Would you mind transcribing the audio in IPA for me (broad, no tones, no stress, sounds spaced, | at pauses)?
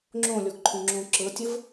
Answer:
ŋ͡ǁ õ lʲ ɔ ɡ ǃʰ õ ŋ͡ǁ õ ǁ ɤ tʲ ə v